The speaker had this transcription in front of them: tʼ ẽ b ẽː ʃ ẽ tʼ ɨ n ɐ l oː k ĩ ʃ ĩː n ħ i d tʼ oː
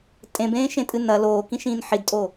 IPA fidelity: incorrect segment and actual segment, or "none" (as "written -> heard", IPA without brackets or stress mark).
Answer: none